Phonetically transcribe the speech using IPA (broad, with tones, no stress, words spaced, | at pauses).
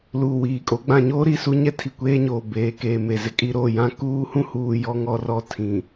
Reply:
luː˨wiː˨kʼo˨˦ ɡ͡bã˨ɲoː˦ɾi˦˨ su˦ ɲɛ˦tʰi˨kʷeː˦ɲoː˨ beː˨keː˨ me˨zɪ˦kʼi˦ ɾo˦˨jã˦ kuː˦hũ˦huː˨ jɔ˦ŋɔ˦rɔ˦ tʰĩ˨